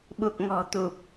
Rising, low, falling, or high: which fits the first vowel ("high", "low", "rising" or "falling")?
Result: low